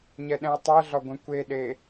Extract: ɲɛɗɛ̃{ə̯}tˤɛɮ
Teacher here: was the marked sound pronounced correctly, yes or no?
no